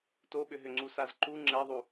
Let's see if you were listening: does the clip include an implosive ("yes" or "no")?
yes